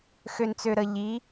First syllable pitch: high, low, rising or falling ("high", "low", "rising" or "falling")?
low